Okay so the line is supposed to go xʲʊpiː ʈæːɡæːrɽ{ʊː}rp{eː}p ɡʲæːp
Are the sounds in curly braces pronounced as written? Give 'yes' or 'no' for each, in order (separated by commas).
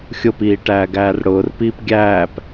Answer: yes, no